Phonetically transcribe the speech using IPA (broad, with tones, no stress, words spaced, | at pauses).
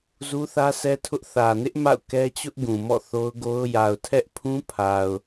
zu˦θä˦sɛ˦tʰʊ˦ʔ θä˨nɪ˦ʔ ma̰˦˨ʊ̯kɛ˦t͡ɕʊ˦ʔ ɡũ˨mɔ̰˦˨ θo˦ʊ̯ɡo˦ʊ̯ ja˨ʊ̯tʰɛ˦ʔpʰũ˦pʰa˨ʊ̯